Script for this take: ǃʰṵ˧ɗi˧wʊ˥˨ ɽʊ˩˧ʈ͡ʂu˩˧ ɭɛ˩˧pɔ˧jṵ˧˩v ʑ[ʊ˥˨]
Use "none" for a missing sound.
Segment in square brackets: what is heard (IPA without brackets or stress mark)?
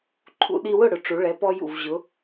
ʊ˩˧